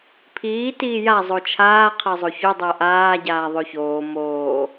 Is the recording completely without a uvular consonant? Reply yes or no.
no